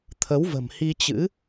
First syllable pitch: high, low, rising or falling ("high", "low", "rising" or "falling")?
rising